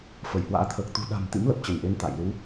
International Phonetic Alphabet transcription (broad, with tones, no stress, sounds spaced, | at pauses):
f ə˧˩ j h w a̰ː˧˥ t̪ʰ əː˨˩ k̚ t̪ ṳ˨˩ ɗ a̤˨˩ m t̪ ḭ˧˥ m l ə˨˩ p̚ t͡ɕ ə˧˩ n ʔ e˨˦ n t̪ a̰˧˨ j l u˨˦